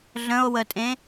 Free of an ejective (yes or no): no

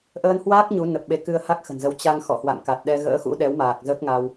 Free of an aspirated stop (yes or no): yes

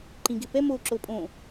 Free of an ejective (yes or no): no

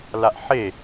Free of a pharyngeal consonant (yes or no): no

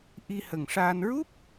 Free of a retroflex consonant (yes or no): no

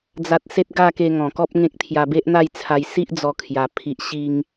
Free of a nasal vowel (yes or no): no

